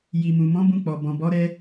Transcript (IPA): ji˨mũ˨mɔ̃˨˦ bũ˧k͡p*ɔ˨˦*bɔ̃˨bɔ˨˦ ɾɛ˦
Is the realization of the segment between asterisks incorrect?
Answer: yes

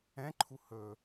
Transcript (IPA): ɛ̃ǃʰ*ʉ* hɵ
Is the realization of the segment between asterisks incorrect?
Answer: yes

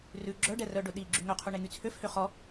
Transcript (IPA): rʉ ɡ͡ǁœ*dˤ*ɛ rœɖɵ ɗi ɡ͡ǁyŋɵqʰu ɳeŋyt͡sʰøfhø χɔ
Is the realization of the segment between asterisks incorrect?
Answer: yes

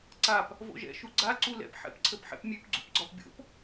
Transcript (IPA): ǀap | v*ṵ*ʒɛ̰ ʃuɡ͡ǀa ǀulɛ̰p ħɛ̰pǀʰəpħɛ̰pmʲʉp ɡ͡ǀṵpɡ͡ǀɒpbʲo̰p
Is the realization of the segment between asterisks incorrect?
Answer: yes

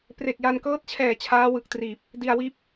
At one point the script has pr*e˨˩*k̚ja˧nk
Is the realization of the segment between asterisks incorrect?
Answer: no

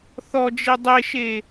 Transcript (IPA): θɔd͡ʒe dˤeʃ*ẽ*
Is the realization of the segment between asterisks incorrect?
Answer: yes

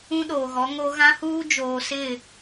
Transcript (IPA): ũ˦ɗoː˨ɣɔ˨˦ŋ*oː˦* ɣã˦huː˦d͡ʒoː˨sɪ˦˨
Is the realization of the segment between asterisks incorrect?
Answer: yes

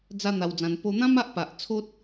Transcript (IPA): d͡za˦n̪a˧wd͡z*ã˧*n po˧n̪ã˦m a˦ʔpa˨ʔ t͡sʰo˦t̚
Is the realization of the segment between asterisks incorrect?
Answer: no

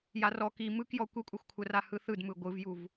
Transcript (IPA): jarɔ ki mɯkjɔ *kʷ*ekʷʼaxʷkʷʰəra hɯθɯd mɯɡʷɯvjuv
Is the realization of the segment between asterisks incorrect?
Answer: no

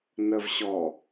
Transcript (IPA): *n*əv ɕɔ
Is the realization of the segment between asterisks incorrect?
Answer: no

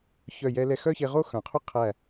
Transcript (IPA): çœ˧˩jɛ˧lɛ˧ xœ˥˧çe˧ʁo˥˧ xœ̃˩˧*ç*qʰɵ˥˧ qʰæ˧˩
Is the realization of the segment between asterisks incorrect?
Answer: yes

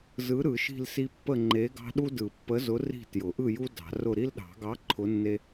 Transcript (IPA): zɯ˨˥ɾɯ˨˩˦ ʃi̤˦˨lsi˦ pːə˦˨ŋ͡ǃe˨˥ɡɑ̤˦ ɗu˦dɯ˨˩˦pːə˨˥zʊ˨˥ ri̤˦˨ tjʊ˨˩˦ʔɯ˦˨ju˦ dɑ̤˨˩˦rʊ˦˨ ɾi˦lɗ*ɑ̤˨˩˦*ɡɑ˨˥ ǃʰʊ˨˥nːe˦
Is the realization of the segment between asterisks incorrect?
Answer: no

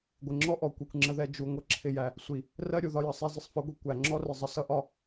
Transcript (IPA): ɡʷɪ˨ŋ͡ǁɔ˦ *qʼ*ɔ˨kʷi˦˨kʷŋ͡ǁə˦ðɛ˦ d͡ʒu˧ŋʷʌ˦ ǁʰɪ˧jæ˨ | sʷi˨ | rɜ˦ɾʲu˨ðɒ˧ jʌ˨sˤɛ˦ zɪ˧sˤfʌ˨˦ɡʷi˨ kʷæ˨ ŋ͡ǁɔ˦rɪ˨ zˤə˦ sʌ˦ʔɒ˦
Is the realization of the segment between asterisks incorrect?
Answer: yes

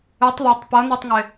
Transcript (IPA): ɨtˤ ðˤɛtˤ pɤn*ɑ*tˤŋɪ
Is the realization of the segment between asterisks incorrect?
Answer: yes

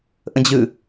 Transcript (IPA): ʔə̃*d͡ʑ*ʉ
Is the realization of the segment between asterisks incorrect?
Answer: no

